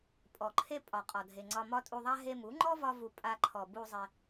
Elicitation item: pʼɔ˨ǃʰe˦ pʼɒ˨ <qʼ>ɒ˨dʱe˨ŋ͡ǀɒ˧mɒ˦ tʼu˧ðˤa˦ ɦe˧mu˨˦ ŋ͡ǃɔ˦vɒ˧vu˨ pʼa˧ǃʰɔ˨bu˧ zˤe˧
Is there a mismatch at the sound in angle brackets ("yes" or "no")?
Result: no